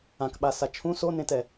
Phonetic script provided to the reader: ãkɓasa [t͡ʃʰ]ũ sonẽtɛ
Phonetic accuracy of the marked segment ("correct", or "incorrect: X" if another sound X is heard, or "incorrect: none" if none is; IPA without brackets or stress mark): correct